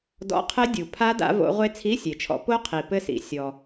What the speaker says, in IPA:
d ɔ̰˧˥˧ qʰ ɘ˦˥ dʲ u˩ pʰ a˦˥ d a̰˨˦ v o̰˨˦ ʁʷ e˦˥ t͡sʰ i˧˥˧ sʲ e˩ t͡ʃʰ ɔ̰˨˦ p o˦˥ qʰ i˩ p ɘ˥˧ s ḭ˩ sʲ ɔ˩

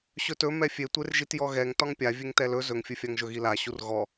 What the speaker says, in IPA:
ɕ ɵ t ɵ m ɛ fʲ e tʷ e r ʒ i t j ɔ ɣ ɛ ŋ t ɒ ŋ pʲ a vʲ e ŋ t ɛ l ɵ z ɵ ŋ fʲ ɵ fʲ a ŋ ʒ ɵ ɣ i l a ɕ u r ɣ ɔ

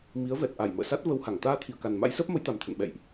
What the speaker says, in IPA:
m i˨˦ ə̯ v ɛ˨˩ t̚ ʔ a˧˩ j m ə̰ː˧˨ s a˦˥ t̚ v ə˧ w h a˧˩ ŋ t̪ aː˧ t̪ʰ i˧˩ ə̯ k a˨˩ n m a̰˧˥ j s əː˦˥ p̚ m ə˨˦ j t̪ a˨˩ m t̪ʰ ə̰˧˨ n ɓ ɛ̰˧˨ j ʔ

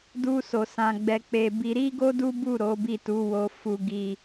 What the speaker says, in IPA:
d u˦ s o˧ s ã˧ ɡ͡b ɛ˧ k͡p e˧ b i˧ ɾ i˦ ɡ o˦ d u˦ b u˦˨ ɾ o˨˦ b i˦˨ t u˨˦ w o˧ f u˧ ɡ i˧

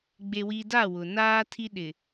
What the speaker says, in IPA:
ɡ͡b e˨ w i˨ d a˦˨ w ʊ˨ n aː˦ tʰ i˦ ɗ ɪ˨

